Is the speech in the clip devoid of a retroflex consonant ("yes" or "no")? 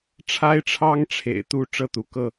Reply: no